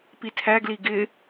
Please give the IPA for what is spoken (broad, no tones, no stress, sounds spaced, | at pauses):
p i tʰ æ ɡ l i ɡ ɪ